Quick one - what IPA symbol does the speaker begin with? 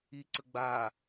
i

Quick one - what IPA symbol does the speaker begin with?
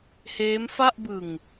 h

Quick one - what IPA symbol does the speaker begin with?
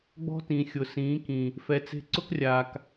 ɡ͡b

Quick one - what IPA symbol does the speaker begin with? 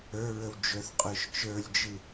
ə˞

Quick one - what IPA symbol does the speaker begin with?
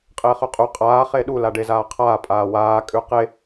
qʼ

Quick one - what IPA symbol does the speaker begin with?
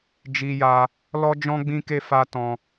d͡ʒ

